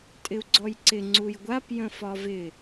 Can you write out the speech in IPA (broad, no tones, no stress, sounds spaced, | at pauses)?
tʼ ɪ u̯ ɡ͡ǀ ɔ j ǀ ɪ ŋ͡ǀ u j ɡʷ a p j ə̃ f ɒ v ɪ